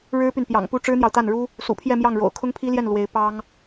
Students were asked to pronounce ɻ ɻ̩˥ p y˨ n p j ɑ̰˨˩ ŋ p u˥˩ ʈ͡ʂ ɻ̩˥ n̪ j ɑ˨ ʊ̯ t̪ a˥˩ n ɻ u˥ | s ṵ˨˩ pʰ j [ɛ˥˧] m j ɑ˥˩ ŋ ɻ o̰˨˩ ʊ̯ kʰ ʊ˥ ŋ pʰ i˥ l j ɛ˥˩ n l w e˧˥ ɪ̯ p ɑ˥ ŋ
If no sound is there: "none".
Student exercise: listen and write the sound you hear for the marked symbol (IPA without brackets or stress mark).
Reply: ɛ˥˧